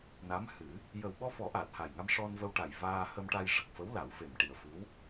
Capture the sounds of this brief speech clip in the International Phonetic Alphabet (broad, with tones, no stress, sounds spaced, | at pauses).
n a˧˥ m h ɨ˨˩˦ | j ə˨˩ w ɓ ɔ˧ f ɔ˨˩˦ ʔ aː˨˩ t̚ h a˨˩ j ŋ a˧ m ʂ ɔ˧ n v ə˧ w ʈ a˨˩ j v aː˧ h ə˧ m ʈ a˧ j ʂ ə˨˩ k̚ f ə˧˥ w l a˨˩˦ w f e˨˩ m ʈ i˨˩ ə̯ f ɨ˧˥ w